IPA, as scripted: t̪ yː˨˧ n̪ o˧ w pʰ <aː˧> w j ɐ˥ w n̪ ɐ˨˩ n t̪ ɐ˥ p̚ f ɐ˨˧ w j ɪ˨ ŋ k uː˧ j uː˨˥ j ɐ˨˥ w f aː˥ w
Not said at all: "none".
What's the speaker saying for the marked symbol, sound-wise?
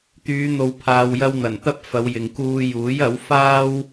aː˧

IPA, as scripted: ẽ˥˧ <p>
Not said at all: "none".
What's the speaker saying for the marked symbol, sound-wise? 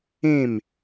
m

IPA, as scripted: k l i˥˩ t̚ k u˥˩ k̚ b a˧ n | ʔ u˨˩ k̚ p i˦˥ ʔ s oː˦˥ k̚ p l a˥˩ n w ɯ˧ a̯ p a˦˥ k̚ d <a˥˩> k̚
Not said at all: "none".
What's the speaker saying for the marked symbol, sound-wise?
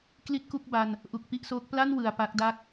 a˥˩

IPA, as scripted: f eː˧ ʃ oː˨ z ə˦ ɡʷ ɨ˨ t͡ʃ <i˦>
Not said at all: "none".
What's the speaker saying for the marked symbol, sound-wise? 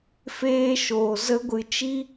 i˦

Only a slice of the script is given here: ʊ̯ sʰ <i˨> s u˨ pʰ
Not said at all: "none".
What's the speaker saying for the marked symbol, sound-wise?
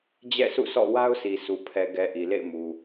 i˨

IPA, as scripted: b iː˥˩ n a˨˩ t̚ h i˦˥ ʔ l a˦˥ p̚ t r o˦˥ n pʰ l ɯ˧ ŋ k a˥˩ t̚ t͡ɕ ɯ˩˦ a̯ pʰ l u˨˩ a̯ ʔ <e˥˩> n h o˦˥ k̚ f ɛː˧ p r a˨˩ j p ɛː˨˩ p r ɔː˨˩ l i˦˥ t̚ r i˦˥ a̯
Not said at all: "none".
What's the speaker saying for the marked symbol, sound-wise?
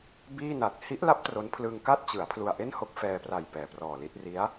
e˥˩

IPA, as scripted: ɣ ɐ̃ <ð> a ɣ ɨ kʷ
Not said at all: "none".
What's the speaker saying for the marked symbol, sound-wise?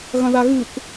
ð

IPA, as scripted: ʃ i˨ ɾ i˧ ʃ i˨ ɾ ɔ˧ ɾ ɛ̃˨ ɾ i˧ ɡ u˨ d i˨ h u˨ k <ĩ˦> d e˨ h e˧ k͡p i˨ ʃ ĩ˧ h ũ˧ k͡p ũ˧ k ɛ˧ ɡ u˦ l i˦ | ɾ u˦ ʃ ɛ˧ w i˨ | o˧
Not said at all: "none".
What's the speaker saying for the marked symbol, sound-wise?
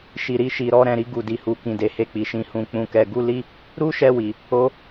ĩ˨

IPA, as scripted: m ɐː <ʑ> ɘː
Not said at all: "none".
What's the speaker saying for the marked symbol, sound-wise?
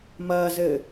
z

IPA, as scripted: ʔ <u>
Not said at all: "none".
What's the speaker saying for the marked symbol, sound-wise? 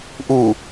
u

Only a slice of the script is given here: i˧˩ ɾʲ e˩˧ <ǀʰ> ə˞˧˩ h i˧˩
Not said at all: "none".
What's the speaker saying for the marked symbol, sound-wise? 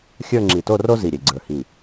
ɡ͡ǀ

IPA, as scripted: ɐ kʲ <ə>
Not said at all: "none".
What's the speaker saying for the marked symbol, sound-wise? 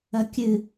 ɨ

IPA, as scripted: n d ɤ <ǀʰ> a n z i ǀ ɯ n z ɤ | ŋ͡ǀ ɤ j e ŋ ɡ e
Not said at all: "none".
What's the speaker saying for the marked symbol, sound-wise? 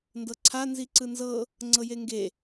ǀʰ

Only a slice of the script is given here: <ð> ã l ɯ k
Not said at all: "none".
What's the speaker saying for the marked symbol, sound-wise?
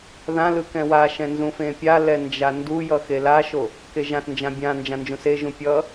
ð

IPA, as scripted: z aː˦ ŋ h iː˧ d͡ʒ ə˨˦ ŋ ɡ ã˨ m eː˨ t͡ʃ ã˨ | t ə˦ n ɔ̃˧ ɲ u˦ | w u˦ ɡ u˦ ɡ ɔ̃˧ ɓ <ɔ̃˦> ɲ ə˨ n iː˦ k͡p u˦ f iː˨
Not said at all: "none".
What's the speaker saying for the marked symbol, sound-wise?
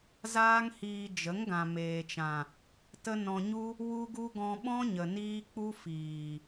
ɔ̃˦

